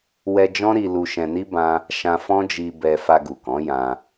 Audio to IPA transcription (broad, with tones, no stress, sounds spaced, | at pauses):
w ɛ˧ d͡ʒ ɔ̃˦ ɾ i˧ l u˧ ʃ ɛ̃˧ n i˦ b ã˦ | ʃ ã˧ f ɔ̃˦ d͡ʒ i˧ b ɛ˧ f a˧ ɡ u˨ k ɔ̃˨˦ j ã˧